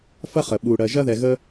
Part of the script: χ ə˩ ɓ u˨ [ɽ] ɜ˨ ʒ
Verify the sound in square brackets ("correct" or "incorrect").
correct